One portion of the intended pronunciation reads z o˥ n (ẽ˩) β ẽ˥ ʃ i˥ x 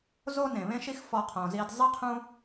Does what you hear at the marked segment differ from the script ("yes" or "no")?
no